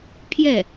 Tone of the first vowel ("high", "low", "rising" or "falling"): falling